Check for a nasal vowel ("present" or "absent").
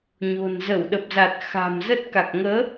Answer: absent